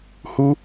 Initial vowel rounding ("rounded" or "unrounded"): rounded